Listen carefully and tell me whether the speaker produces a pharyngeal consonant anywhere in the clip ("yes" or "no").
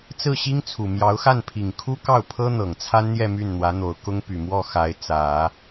no